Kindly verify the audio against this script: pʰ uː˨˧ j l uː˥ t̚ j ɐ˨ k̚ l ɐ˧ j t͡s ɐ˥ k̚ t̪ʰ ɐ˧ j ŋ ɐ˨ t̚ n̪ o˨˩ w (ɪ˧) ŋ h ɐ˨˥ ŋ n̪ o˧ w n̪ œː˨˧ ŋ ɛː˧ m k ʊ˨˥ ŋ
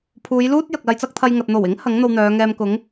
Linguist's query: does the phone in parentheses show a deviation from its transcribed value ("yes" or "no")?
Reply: yes